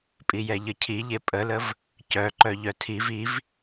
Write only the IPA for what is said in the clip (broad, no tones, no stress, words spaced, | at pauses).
pʼijɛʎəcʰi ʎepʼələv | cœ ǃœʎœtʰiv iv